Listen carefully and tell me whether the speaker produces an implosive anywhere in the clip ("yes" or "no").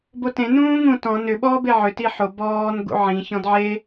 yes